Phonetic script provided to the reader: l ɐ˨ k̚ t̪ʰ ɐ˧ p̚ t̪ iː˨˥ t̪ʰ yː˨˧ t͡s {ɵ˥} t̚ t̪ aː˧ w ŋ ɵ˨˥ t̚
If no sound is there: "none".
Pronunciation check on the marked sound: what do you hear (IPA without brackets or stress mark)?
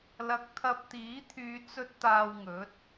ɵ˧